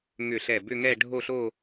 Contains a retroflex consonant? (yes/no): yes